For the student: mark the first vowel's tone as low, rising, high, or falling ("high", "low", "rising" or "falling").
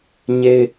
high